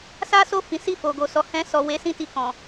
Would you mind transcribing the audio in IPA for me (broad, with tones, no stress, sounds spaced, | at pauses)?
s a˦ s o˦˨ f ĩ˨˦ s i˦˨ f o˨ ɡ o˨ s ɔ˨ h ɛ̃˧ s ɔ˨ w e˨˦ s ĩ˧ t i˧ k ɔ̃˨